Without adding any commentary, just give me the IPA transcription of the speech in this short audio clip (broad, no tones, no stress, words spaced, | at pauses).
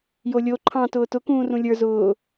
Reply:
jolʲo ǃʰɑ̃ tʊːtʊ kũːrũlʲə˞ zʊː